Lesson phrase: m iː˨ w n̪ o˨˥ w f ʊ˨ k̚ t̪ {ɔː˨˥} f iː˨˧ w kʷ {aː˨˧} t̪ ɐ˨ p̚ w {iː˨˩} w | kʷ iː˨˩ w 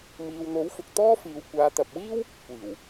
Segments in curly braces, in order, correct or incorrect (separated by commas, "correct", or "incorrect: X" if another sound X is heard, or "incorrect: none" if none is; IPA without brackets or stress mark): incorrect: ɔː˥, correct, incorrect: iː˥